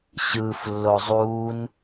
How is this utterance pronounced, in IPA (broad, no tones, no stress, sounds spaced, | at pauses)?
ɕ ɯː f lː o zˤ uː n